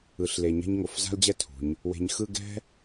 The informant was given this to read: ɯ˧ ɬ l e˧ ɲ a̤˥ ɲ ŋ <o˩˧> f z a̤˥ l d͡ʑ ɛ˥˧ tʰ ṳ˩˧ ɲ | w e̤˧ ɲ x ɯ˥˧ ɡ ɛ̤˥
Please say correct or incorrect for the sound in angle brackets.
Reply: correct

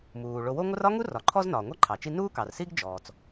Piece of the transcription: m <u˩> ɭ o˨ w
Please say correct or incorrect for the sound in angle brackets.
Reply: incorrect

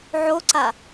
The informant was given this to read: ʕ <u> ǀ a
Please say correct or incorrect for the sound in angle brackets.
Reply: incorrect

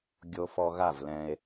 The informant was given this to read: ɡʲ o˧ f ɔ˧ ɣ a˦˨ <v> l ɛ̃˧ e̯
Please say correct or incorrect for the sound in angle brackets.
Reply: correct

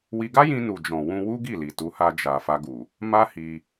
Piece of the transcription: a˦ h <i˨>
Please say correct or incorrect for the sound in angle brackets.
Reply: incorrect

